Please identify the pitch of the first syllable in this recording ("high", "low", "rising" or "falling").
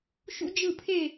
high